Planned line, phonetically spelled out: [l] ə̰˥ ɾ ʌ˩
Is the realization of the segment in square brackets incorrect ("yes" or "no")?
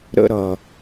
yes